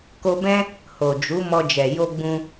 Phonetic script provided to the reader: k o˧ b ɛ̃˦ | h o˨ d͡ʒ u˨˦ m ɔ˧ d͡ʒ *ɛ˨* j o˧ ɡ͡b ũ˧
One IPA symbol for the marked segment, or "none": ɛ˨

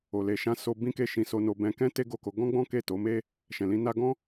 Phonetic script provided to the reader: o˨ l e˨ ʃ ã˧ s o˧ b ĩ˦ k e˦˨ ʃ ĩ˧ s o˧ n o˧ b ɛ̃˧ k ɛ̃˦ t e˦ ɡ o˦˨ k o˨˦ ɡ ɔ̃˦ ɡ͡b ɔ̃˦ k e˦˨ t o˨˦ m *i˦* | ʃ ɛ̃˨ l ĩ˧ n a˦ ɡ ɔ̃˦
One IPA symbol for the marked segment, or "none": e˦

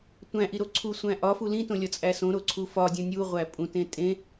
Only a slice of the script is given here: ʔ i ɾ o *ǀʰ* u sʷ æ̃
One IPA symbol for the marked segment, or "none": ǀʰ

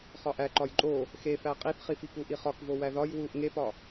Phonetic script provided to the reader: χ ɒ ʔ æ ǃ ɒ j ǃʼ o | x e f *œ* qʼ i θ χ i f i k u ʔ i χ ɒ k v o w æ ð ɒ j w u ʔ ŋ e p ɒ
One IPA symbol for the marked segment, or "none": æ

